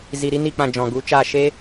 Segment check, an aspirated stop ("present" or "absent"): absent